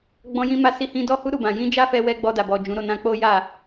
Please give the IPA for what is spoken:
ɡ͡b ɔ̃˧ j ĩ˧ m a˧ s i˧ h ĩ˧ d ɔ˦ h u˦ ɾ u˦˨ b ã˨ j ĩ˧ d͡ʒ a˦ f ɛ˧ w ɛ˧ ɡ͡b ɔ˧ d a˨ b ɔ˨ d͡ʒ ũ˨˦ ɾ o˦˨ n ã˧ k͡p o˦ j a˦˨

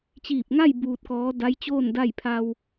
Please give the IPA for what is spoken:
t͡ɕ iː˧˩ p̚ ŋ a˥˨ j b uː˧ t̚ k ɔː˧˥ d a˧˥ j t͡ɕ oː˥˨ n d a˥˨ j pʰ a˧ w

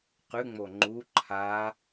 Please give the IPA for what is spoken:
q ʉ ŋ͡m o ŋ͡ǃ u ǃʰ a

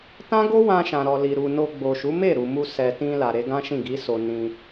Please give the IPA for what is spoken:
t ã˦ ɡ o˦ w ã˧ ʃ ã˨ ɾ ɔ˨ l i˨ ɾ u˨ n o˧ ɡ͡b o˨ ʃ u˨˦ m e˦˨ ɾ u˨ m u˧ s ɛ˨ t ĩ˧ l a˨ ɾ e˨˦ ɡ ã˦ ʃ ĩ˦˨ ɡ i˨˦ s o˧ n ĩ˧

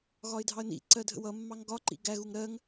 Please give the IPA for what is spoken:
ɣ ɒ ɪ̯ dʱ ɑ ə̯ n ḭ ǀ ɜ dʱ ə̰ w ʌ mː ɑ ŋ ɡ ɒ ǃ ḭ ɡ æ ɣ u ŋ ɾ ɜ ŋ

